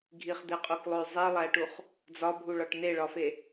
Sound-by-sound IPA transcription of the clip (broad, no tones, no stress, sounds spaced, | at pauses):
ɡʱ i χ d̪ e qʼ u k lˠ o y̯ zˤ i lˠ æ ʈ u χ | d͡z ɒ bʱ u ɭ ɒ ʈ n e ɭ ɒ f e